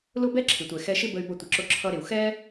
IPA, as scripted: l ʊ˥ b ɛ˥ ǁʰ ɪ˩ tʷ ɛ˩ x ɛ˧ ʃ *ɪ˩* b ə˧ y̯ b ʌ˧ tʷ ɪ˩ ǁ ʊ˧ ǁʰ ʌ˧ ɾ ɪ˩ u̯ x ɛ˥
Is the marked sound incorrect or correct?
incorrect